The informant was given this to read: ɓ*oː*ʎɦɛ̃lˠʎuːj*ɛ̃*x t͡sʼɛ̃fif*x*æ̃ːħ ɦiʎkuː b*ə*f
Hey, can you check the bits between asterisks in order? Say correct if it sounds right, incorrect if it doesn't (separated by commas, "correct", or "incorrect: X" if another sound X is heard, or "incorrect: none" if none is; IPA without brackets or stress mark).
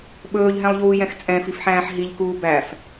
incorrect: ɵː, correct, incorrect: ħ, incorrect: æ